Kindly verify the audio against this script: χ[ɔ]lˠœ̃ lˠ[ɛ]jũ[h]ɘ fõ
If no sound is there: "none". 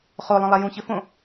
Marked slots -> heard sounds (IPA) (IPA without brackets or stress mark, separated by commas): o, ɛ, ç